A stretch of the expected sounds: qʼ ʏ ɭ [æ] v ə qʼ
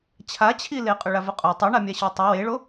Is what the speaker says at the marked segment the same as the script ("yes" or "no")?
no